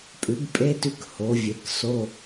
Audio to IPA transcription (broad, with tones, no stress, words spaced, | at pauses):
pʼʉ˩˥bpʼe˧˥˧tʉ˦˨k ho˩˥vʲe˩˥k so˧˥˧